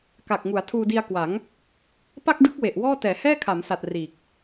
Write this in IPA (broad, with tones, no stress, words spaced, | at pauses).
ka˨˩k̚ŋu˩˦a̯ tʰuː˧di˧a̯kwa˩˦ŋ | pa˥˩k̚dɯ˦˥k̚ we˨˩ʔwɔː˥˩ tɛː˩˦hɛː˥˩kʰa˩˦msa˨˩t̚ riː˨˩k̚